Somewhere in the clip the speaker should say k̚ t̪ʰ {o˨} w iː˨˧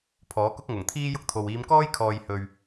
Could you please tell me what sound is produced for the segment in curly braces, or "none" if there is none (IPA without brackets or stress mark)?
o˨